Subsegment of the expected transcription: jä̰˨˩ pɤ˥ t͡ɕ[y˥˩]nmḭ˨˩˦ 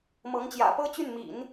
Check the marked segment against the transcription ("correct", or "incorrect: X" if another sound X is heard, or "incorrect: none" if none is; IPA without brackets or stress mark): correct